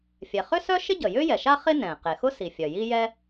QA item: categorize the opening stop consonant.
plain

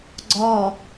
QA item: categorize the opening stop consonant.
click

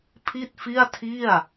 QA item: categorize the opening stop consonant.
aspirated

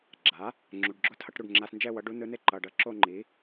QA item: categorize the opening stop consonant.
click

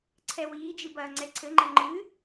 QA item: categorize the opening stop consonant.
click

